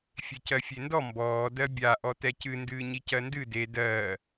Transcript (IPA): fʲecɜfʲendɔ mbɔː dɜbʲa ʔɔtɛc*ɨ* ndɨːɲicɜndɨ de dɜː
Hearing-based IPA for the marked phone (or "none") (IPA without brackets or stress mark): ɨ